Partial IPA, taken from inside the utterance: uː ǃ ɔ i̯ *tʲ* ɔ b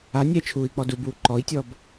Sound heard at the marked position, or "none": tʲ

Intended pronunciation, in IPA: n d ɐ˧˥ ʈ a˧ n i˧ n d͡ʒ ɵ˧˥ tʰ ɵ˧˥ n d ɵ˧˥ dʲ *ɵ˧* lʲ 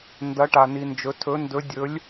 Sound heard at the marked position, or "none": ɵ˧˥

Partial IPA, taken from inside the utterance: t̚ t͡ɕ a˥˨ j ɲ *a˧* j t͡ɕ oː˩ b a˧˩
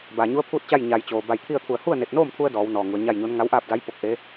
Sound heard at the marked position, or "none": a˩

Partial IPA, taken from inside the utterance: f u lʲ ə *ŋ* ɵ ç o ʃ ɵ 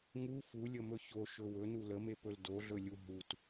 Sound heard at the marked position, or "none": m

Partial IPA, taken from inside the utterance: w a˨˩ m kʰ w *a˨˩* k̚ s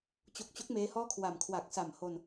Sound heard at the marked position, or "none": a˨˩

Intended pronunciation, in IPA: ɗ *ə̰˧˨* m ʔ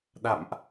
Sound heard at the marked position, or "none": a̰˧˨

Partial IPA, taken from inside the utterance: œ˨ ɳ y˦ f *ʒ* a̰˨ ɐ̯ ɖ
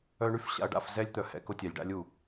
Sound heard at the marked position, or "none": ɕ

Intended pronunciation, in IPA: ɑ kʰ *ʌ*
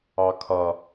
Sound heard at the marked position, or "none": ʌ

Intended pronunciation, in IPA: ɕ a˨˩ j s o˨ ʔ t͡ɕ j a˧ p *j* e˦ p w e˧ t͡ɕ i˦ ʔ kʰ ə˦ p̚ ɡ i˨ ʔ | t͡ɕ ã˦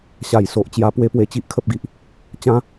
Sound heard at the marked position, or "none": w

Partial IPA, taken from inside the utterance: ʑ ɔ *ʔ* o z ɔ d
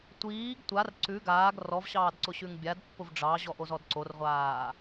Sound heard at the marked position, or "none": ʔ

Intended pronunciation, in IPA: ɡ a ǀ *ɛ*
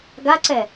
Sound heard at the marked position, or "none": ɛ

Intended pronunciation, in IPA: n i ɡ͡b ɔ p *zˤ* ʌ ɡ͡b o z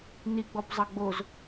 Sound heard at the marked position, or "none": zˤ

